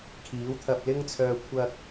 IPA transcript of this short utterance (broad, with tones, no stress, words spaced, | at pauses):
kʰiː˨˥wt̪ʰɐ˧p̚lɪ˥ŋt͡sʰœː˧ kʷʰɐ˧k̚